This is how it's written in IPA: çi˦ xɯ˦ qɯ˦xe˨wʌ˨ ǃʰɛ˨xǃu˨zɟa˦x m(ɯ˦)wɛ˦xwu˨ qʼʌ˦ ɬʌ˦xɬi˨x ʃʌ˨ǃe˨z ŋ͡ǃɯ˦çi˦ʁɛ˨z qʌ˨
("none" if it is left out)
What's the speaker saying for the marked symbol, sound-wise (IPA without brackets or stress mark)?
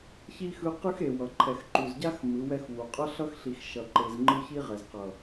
ɯ˨˦